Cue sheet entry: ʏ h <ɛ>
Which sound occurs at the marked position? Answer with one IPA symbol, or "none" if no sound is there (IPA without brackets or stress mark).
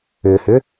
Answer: ʏ